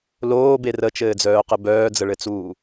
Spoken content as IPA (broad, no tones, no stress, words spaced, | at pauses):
loːbe rət͡ʃɘːd͡zœːqɘ bœːd͡zəɭɘt͡suː